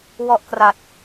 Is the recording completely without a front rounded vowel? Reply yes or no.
yes